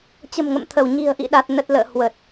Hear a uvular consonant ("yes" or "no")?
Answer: no